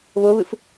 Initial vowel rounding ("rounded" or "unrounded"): rounded